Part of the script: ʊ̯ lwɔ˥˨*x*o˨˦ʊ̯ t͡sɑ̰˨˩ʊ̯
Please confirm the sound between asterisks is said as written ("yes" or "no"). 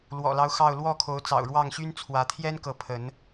no